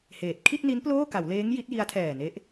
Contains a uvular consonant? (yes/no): no